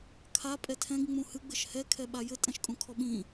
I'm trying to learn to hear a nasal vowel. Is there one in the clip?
yes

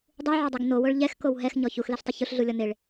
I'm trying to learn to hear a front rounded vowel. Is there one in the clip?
no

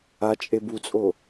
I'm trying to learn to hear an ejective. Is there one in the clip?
yes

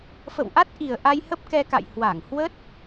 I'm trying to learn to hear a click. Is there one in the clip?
no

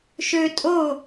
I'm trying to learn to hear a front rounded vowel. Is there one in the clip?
yes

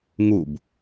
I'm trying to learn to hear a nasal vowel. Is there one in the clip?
no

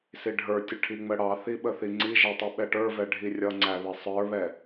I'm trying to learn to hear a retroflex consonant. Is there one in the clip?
yes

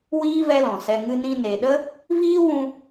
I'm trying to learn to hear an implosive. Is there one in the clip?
yes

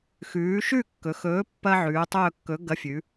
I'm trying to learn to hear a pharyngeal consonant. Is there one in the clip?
yes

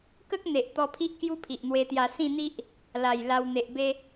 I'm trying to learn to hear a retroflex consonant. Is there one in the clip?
no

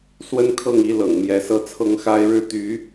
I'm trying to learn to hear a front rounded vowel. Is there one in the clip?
yes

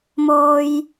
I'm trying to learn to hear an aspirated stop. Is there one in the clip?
no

